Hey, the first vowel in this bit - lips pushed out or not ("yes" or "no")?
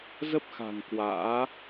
no